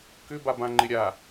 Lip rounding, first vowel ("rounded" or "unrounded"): rounded